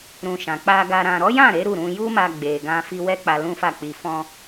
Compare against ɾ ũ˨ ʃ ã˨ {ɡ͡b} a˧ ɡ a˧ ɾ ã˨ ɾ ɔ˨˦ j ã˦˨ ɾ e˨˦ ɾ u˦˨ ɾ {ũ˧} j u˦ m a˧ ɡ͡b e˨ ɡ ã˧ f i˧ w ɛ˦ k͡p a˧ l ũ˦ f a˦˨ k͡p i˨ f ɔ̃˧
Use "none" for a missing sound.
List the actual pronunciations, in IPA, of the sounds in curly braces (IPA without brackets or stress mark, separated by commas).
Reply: k͡p, ũ˧